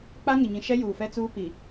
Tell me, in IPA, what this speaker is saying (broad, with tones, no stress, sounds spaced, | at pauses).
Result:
k͡p a˦ ŋ ɪ˨ ɲ ĩ˨ ʃ ɛ˦ j uː˨ f ɛ˦ t͡s uː˦ p i˨